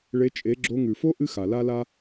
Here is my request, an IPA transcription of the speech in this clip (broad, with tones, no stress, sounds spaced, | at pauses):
ɭ e˧ t͡ʃʼ e˨˦ ɡ͡ǁ o˧ ŋ ʉ˨ f o˦ ʔ ɨ˦ x a˨ l a˦ l a˦